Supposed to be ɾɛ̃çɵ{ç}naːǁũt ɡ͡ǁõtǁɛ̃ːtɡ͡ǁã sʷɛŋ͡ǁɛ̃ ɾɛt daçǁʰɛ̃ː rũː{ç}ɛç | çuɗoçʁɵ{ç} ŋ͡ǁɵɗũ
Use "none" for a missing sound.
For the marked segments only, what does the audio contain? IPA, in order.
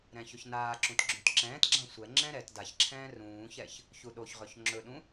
ç, ç, ç

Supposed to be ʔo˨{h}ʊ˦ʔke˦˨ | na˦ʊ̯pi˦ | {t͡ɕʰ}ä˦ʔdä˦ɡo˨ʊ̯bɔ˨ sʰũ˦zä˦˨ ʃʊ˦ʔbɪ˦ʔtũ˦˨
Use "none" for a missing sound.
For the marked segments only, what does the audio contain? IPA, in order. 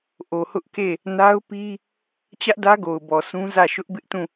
h, t͡ɕ

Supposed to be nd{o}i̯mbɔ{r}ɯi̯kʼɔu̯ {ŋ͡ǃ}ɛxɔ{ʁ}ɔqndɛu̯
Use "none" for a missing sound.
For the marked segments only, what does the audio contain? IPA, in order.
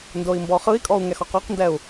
o, χ, ŋ, q

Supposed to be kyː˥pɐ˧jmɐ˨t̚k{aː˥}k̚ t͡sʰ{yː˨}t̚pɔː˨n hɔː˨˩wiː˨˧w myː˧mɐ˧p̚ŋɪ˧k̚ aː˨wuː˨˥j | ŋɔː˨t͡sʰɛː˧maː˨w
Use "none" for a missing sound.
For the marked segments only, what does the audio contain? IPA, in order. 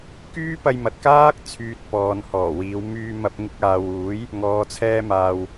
aː˥, yː˧

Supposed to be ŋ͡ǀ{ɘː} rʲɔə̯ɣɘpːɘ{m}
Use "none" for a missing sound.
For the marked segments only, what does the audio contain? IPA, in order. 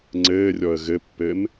ɘː, m

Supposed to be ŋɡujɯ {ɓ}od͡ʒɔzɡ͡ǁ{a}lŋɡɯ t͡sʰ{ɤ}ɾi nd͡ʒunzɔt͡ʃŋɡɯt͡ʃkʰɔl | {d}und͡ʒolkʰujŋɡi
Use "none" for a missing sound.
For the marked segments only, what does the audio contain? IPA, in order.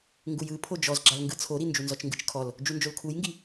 pʰ, a, o, d͡ʒ

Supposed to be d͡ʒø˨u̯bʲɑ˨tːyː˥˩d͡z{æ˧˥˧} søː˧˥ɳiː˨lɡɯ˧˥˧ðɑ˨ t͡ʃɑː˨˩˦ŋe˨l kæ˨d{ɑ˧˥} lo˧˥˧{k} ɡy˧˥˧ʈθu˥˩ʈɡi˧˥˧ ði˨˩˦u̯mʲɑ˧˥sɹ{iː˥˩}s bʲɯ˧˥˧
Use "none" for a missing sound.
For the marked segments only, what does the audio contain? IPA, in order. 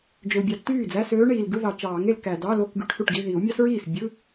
æ˧˥˧, ɑ˧˥˧, k, iː˥˩

